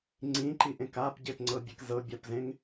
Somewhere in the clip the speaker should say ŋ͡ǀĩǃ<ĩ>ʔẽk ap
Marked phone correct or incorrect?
incorrect